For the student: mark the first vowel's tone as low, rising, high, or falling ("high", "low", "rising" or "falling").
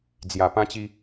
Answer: low